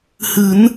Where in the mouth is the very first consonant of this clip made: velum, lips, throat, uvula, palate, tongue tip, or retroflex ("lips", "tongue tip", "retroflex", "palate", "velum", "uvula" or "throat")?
throat